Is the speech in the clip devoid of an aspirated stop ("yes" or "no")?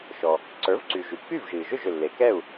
yes